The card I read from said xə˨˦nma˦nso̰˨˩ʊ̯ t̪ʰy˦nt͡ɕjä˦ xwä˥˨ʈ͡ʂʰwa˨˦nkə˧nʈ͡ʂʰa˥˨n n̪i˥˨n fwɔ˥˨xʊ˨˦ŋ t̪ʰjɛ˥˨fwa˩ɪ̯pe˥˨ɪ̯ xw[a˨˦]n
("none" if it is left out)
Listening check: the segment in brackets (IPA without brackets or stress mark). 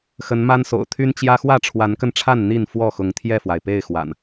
a̰˨˩